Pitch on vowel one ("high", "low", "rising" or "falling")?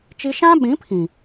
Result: high